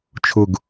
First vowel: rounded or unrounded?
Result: rounded